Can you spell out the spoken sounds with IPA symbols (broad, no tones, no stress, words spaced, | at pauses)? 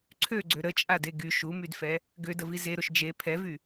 ǀʰøɡ͡ǀø ɾət͡ʃʼade ɡy ʃumydfɛ | ɡødəvi zeɾoʃ d͡ʒe pʰɛvy